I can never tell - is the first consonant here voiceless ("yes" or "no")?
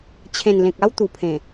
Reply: yes